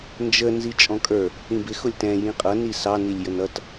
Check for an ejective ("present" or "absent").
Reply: present